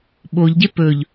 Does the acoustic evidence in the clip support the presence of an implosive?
yes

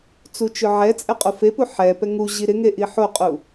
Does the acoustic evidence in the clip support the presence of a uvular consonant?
yes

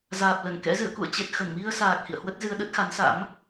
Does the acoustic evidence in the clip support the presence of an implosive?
yes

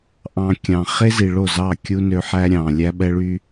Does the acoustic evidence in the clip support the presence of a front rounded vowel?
yes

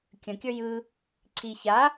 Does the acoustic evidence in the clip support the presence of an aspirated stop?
yes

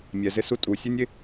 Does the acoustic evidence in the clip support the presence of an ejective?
yes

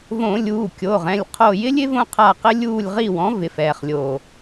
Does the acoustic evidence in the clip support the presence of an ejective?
no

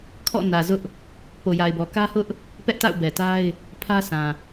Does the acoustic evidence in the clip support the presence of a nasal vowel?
yes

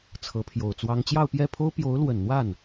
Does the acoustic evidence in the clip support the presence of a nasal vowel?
no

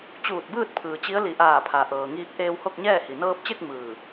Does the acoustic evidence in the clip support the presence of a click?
no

